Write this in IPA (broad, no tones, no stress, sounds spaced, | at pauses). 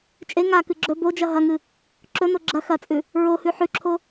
t͡ʃʼ e ŋ a k ɨ ɡ͡ǁ ɵ b o d͡ʒ ɐ ɦ ɐ ŋ ɨ | ǁ ɵ n o ɡ͡ǁ ɐ x ɐ t͡sʼ ʉ | ɹ o h ʉ ħ ʉ ǁʰ o